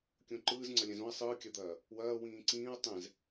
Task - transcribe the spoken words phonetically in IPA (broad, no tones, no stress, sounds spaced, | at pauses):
kʲ õ ǃ ɯː z ŋ͡ǀ ɐ lʲ ɛ̃ z õ ɐ̯ sˤ ɯː kʲ ɐ d̪ ɐː | w ɐː w ĩː ǀ ĩː ɐ̯ tˤ ɛ̃ z